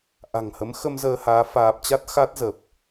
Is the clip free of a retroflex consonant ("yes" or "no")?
yes